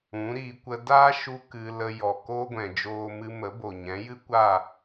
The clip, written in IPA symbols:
ũ˨˦ ɾ iː˧ kʷ ə˧ d aː˦ ʃ u˦ k ɨ˧ l ə˧ j ɔ˨ k oː˦ ɡʷ ɛ̃˨ d͡ʒ oː˦ m ɨ˦ m ə˨˦ b o˨ ɲ ɛ̃˨˦ j ɨ˦ kʷ a˦˨

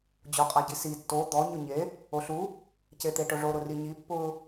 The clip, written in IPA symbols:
d͡ʑ o qʼ a ɟ i s i tː o d̪ ɔ ɲ ʊ ɲ e | o ɬ u | c e t̪ e ʈ ʊ ʐ o ɾ ʊ r i ɲ i pː ʊ

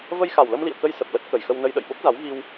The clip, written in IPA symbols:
v ə˧ j x a˨˩ w l ə˧ m l ḭ˧˨ ə̯ k ə˧ j s ə˨˩ p̚ l ə˦˥ t̚ k ə˨˩ j x ə˧ w n ə˧ j ɗ ə̰˧˨ j ɓ o˦˥ k̚ z a˨˦ w ɣ i˧ w

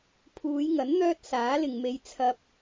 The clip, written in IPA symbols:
pʰ uː˨˧ j ŋ ɐ˨˥ n n̪ œː˥ t̚ s aː˨˥ l ɪ˨ ŋ m e˨˧ j t͡sʰ ɐ˨ p̚

